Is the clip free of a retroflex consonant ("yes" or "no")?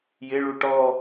no